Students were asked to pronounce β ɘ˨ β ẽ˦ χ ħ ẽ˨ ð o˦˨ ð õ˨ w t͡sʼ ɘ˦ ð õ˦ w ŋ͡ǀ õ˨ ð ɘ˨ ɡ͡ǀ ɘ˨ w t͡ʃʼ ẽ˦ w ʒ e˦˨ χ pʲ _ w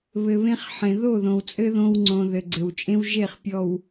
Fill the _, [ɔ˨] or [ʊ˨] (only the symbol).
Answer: ɔ˨